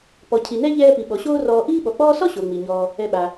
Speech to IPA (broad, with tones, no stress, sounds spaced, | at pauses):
p ɔ˩ cʰ i˩ n ɛ˦ ʎ ɛː˦ p i˩ ɓ ɔ˩ ɕ oː˦ r ɔː˨ ʔ iː˦ ɓ ɔ˩ k͡p ɔː˦ s ɔ˥ ɕ o˩ ŋ͡m i˩ ɲ ɔː˨ | ɛ˨ ɓ a˩